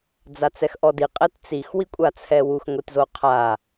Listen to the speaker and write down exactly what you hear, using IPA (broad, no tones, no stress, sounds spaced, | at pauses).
d͡z a t͡s ɛ x ʔ ɔ d i qʼ ɛ t t͡s i x w i kʷʼ a t͡sʰ ɛ w u x ŋʷ i t z o qʰ a